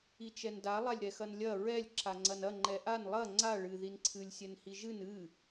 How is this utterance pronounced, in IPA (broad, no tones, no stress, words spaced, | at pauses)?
it͡ʃɛnda lˠalʲɾɛxɐnlʲɐ ɹɛlʲ ǁaŋ͡ǀɐnɐ ŋ͡ǃɛʔan lˠɐ ŋ͡ǀa ɭɨ ðinǀʰɨlʲ sʲɛnhiʒɨn ɨ